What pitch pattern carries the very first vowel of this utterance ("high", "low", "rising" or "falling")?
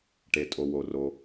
low